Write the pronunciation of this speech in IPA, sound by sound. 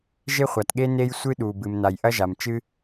ʒ e˥ χʷ a˩ t ɠ e˥ n e˥ j sʷ ɨ˥ ɗ u˩ b ɨ˩ m n a˩ j ʔ ɐ˥ ʒ a˩ m t͡ʃ ɨ˥

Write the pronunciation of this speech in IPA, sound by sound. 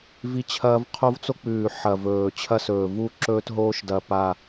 v i˦ t͡ɕʰ ɐː˦ v qʰ o˦ v t͡s o˦ k͡p ʉː˨˩ ħ ɐ˨˩ v ɵː˨˩ t͡ɕʰ ɐ˦ s ɵː˨˩ v u˦ ǁ ɵː˦ t ɦ oː˦ ʃ d ɐ˨˩ p a˨˩

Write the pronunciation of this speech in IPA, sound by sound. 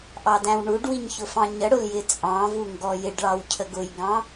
ʔ ɑ d æ̃ w ɳ u ɖ w i ɲ ç ʊ f ɑ̃ ɲ ə ɽ ʊ l j ɪ t͡sʼ ɑ̃ v u ŋ ɡ ɔ j ɪ ɖ ɭ ɑ w cʰ ə ɡ ʊ j ɡ ɑ̃

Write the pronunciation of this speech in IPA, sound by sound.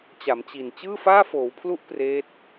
t͡ɕ a˩˦ m t͡ɕ i˨˩ n t͡ɕ ɯː˥˩ f aː˥˩ f oː˩˦ w pʰ l u˦˥ ʔ p r eː˦˥ t̚

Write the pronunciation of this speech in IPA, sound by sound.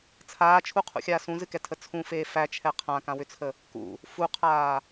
t͡sʰ aː t͡ʃʰ u qʰ ṵ xʲ aː s ũ z ɨ k ɛ tʰ ə t͡sʰ ũ f eː f æ t͡ʃʰ ɛ qʰ ã k ã w ʏ t͡sʰ ə | k ṵ | f u qʰ aː

